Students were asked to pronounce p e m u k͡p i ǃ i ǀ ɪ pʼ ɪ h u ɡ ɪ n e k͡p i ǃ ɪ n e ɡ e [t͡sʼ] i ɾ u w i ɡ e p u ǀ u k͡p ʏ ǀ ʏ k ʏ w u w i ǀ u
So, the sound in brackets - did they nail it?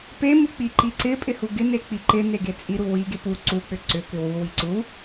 yes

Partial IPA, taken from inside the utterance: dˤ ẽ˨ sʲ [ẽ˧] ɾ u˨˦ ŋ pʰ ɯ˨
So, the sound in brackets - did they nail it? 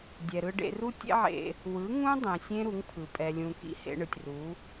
no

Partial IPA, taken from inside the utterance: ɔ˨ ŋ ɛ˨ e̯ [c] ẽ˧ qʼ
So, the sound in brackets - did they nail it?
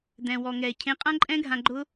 no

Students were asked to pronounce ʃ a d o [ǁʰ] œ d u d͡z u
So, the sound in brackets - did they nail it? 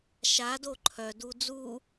no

